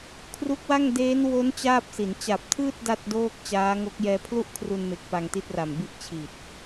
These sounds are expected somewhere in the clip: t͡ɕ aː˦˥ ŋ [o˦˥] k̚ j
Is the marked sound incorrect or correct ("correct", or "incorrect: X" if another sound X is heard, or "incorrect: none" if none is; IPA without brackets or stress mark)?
correct